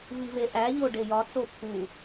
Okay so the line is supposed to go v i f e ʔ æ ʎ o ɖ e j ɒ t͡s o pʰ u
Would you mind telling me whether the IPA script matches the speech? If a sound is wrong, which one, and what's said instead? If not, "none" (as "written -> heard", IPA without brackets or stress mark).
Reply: f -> v